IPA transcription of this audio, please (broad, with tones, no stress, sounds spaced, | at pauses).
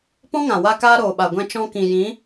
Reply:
p ɔ̃˦ ŋ ã˨ w a˦ k aː˦ ɾ oː˨ ɓ a˨ ɡʷ ɛ̃˧ t͡ʃ ɔ̃˧ k ĩ˨ j ĩ˨˦